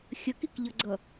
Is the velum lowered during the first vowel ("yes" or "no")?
no